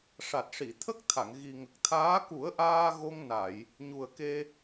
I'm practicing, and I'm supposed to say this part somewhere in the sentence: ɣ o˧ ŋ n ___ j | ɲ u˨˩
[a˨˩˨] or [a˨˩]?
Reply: a˨˩˨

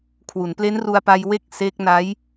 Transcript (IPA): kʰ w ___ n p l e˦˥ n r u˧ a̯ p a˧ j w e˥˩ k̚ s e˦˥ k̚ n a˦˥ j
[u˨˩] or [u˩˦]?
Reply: u˩˦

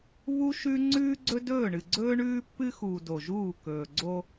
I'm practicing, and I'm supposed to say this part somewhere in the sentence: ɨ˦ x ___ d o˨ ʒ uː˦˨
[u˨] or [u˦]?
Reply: u˨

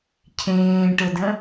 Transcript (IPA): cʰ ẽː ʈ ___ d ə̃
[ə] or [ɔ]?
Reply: ə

